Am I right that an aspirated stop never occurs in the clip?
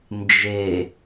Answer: yes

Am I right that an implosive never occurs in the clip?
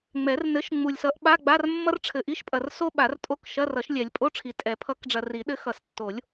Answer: no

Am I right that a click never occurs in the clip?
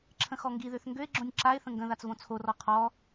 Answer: no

